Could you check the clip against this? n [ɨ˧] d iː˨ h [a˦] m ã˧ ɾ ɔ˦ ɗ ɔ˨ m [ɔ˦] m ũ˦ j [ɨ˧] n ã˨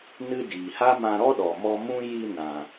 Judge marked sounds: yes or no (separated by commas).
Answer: yes, yes, no, no